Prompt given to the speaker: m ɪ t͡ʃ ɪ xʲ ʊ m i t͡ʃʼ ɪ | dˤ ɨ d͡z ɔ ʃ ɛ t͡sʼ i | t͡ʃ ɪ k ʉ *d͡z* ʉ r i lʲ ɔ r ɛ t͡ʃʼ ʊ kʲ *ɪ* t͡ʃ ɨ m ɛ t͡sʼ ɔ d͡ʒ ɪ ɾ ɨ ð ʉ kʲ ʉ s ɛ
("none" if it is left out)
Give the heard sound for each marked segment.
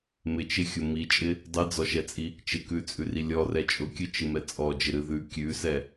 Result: t͡sʼ, ɨ

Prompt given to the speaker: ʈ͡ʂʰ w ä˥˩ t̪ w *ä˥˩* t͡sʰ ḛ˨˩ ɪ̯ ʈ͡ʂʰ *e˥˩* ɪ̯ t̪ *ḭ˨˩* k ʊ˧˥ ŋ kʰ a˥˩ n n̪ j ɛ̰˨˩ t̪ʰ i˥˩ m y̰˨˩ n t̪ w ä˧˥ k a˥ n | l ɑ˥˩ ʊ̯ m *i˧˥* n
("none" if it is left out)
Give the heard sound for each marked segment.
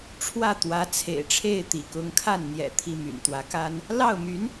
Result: ä˧˥, e˥˩, ḭ˨˩, y˧˥

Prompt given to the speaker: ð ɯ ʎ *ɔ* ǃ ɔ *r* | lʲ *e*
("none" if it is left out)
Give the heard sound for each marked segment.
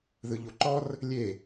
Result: o, r, e

